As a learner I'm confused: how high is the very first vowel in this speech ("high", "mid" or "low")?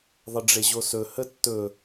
mid